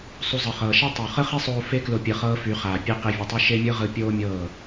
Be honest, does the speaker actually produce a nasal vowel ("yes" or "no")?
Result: no